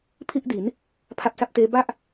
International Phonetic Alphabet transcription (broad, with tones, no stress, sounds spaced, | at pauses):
pʰ i˥˩ ʔ d i˩˦ n | pʰ a˦˥ p̚ s a˦˥ p̚ t eː˦˥ b a˥˩ ʔ